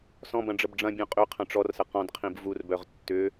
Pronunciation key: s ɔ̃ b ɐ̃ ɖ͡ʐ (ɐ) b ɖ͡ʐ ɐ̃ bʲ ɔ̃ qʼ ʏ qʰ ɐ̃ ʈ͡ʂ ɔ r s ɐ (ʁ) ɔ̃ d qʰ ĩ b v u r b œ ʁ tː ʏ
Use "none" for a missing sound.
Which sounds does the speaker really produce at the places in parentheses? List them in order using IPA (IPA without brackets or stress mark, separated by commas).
ə, q